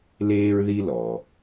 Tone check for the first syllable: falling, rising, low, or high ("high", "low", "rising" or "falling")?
high